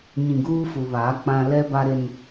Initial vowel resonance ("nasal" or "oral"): nasal